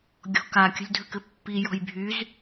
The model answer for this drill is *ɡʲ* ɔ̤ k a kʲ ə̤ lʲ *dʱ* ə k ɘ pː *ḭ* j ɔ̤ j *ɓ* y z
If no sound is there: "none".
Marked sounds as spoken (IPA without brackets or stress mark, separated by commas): ɡʲ, dʱ, i, bʱ